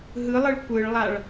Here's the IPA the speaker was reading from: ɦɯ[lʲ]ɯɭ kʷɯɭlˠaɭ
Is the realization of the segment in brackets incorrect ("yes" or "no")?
yes